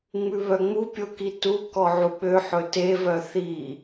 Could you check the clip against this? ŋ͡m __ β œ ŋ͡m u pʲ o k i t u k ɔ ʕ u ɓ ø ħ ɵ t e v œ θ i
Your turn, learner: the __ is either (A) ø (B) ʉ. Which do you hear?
B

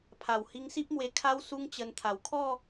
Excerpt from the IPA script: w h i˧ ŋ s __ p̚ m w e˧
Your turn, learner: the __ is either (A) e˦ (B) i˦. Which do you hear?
B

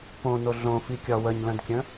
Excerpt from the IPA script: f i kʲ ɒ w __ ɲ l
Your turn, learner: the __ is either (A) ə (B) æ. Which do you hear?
A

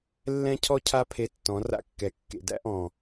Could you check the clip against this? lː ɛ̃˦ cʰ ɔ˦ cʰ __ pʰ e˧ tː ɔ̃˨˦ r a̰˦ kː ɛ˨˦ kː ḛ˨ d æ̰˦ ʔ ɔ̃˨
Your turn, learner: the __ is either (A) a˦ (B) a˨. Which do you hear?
A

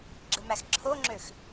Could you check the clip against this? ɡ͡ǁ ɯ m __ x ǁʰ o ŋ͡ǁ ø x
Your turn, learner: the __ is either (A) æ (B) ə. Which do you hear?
A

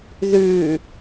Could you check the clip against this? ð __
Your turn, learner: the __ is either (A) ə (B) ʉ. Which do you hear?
B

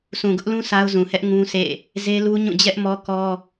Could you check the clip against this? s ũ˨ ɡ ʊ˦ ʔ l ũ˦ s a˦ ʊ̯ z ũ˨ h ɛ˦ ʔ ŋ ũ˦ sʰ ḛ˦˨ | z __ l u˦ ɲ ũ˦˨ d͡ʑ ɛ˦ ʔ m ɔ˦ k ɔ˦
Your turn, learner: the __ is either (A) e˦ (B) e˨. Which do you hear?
A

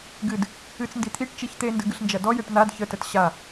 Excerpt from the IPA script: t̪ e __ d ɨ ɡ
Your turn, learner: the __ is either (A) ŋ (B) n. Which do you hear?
B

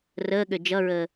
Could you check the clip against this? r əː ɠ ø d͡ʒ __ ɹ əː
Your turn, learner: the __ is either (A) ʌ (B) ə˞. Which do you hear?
A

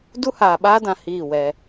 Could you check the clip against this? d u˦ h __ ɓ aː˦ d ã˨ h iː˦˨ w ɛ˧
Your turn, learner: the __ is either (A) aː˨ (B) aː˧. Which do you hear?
A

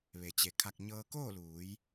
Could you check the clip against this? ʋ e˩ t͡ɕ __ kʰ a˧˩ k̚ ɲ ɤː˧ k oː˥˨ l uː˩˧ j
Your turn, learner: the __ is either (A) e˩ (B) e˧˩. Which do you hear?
A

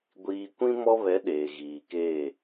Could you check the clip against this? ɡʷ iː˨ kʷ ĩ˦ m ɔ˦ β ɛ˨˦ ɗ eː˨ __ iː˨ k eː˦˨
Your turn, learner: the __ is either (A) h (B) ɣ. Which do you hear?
B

